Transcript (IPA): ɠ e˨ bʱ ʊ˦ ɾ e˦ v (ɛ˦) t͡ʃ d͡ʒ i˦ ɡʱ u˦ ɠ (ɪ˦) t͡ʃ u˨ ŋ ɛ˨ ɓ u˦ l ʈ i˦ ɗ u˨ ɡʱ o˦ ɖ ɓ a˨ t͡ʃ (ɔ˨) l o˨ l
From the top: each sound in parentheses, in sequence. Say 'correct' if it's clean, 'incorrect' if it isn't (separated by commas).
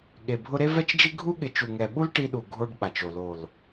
correct, incorrect, incorrect